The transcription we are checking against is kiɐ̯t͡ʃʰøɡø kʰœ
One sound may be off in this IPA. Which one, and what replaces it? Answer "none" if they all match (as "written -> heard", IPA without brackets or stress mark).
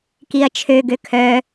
none